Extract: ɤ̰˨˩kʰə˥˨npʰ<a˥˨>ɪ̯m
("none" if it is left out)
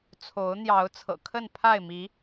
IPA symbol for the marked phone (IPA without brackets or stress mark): a˥˨